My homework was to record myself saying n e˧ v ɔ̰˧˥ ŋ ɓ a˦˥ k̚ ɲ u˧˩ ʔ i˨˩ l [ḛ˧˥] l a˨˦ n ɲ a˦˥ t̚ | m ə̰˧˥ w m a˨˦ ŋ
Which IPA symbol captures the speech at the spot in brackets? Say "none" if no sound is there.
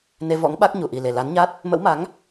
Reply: e˨˩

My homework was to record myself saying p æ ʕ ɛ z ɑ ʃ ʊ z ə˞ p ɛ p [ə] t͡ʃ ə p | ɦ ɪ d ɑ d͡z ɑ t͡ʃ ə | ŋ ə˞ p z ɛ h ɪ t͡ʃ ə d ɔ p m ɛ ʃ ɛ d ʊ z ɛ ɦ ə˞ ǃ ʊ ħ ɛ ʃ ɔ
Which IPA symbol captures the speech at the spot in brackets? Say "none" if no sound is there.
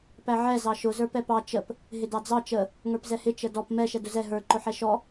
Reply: ɑ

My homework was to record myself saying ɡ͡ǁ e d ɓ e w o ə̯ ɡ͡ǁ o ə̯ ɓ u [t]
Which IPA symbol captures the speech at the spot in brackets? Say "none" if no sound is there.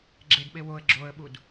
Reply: d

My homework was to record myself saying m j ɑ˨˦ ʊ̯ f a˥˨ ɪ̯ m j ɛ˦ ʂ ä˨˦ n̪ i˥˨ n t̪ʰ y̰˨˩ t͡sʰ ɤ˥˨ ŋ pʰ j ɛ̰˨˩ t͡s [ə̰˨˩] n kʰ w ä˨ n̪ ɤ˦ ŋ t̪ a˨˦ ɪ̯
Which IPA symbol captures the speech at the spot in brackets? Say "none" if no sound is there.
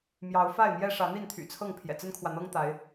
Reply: ə˦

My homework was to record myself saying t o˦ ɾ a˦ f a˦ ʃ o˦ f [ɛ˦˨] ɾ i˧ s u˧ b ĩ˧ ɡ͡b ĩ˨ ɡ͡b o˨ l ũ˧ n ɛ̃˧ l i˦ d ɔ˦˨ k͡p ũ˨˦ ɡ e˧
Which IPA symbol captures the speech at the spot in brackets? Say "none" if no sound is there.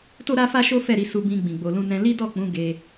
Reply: ɛ˦˨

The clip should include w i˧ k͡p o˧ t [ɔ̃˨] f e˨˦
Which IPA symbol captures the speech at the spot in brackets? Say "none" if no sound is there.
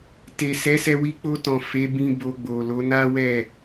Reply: ɔ̃˨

